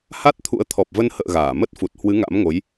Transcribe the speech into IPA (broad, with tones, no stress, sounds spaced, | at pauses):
h a˦˥ t̚ t̪ʰ ṵ˧˥ ə̯ t̪ʰ ɔ˨˩ p̚ v ə˧ n h ə̰ː˧˨ ɣ aː˧˩ m ə˦˥ t̚ f u˨˩ t̚ h w ɨ˨˦ ŋ a̰˧˥ m ŋ o˨˦ j